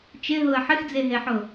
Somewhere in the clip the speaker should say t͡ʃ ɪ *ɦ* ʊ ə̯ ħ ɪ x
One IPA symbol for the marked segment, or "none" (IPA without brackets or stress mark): ɦ